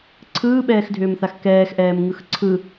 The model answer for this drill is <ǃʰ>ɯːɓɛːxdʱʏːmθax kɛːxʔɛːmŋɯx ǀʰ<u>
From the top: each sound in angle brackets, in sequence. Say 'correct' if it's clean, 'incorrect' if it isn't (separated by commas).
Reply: incorrect, incorrect